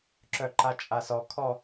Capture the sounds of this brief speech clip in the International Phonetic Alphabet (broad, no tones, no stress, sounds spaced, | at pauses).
ǁ œ ǃ a t͡ʃʼ a s ɔ kʰ ɔ